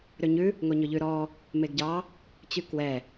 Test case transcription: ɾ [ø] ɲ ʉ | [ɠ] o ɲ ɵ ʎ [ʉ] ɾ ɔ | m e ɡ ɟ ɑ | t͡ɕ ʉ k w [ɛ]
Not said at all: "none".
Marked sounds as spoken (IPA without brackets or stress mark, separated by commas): ø, ŋ, ʉ, ɛ